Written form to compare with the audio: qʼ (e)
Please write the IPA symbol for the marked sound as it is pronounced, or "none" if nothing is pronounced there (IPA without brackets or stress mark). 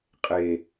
e